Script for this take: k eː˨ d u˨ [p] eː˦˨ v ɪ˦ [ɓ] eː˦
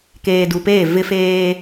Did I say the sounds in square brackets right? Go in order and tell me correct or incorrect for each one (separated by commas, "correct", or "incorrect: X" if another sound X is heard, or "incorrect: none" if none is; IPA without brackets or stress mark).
correct, incorrect: f